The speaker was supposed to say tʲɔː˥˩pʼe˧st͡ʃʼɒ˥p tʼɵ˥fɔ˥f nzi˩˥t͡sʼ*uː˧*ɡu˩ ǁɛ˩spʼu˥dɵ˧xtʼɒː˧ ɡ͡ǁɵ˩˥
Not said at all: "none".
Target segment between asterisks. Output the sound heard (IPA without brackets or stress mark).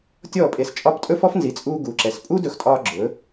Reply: uː˧